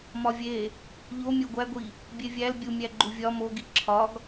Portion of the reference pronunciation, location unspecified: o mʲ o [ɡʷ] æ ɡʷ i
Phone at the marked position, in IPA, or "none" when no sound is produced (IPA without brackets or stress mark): ɡʷ